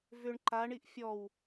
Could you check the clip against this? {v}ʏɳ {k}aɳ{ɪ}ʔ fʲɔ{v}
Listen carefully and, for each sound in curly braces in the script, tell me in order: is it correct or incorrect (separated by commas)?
correct, incorrect, incorrect, incorrect